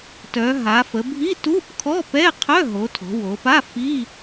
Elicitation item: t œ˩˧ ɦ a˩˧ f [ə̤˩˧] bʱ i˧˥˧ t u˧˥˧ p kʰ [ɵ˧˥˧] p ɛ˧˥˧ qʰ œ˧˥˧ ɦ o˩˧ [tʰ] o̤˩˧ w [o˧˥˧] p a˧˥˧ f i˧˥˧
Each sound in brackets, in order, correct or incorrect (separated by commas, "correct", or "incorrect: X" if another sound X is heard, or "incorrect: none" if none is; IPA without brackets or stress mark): incorrect: ə˩˧, incorrect: ɔ˧˥˧, correct, incorrect: o˩˧